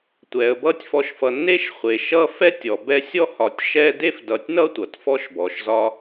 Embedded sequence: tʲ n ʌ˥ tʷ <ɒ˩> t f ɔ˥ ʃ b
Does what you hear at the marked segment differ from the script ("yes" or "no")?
yes